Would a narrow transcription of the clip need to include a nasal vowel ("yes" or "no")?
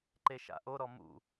no